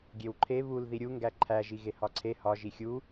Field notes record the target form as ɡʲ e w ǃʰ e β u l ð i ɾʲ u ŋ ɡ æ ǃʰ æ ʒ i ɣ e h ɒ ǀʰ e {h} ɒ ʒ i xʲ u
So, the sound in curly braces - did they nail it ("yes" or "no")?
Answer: yes